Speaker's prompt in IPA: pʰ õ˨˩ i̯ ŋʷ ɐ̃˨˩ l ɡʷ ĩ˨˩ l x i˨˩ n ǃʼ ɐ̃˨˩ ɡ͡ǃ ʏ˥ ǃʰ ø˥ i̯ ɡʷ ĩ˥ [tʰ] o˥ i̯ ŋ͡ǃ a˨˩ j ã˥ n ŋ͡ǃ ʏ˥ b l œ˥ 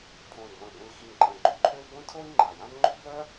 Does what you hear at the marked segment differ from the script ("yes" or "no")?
no